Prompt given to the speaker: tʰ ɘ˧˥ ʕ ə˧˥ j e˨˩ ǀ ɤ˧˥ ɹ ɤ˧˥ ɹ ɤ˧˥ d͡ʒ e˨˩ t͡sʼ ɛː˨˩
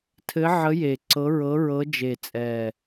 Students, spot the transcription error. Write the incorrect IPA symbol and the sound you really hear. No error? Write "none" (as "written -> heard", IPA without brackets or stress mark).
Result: none